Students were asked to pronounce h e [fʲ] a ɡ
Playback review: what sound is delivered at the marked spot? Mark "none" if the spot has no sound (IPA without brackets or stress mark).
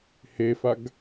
f